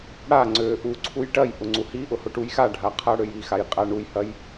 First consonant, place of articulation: retroflex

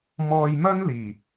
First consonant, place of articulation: labial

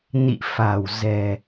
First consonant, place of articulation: alveolar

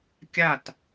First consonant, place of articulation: velar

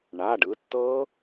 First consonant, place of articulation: retroflex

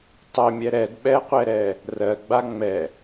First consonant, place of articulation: alveolar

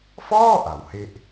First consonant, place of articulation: labial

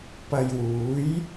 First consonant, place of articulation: labial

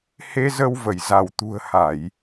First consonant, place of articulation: glottal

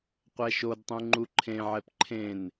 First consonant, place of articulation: uvular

